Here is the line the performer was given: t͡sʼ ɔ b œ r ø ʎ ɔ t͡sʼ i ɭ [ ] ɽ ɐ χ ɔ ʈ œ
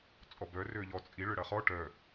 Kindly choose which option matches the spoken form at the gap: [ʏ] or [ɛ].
ʏ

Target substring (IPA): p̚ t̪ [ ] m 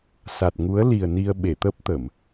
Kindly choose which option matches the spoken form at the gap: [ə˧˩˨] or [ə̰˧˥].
ə˧˩˨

